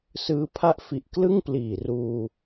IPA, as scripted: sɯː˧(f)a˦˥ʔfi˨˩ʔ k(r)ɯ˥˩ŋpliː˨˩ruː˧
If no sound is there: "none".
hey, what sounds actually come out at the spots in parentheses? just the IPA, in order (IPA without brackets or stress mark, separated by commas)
pʰ, l